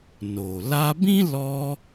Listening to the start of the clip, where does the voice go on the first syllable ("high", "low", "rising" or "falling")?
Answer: low